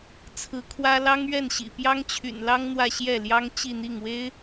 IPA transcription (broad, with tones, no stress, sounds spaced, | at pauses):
t͡sʰ ɹ̩˧˥ kʰ w ä˥ l ɑ˥ ŋ ɥ ɛ˥˩ n ɕ ḭ˨˩ p j ɑ˥ ŋ t͡ɕʰ y̰˨˩ n l ɑ˥ ŋ n̪ w ä˥˧ ɕ j ɛ˥˩ l j ɑ˥ ŋ t͡ɕ i˥˧ n̪ i˥˩ ŋ w e˥ ɪ̯